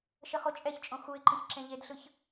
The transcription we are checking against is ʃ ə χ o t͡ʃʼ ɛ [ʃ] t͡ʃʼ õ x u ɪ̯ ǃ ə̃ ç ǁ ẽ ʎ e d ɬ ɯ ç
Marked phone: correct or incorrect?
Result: incorrect